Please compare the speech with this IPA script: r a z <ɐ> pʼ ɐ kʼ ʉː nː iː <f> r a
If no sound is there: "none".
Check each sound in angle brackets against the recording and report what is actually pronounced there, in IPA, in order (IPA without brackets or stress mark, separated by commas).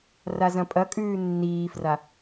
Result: ɐ̃, f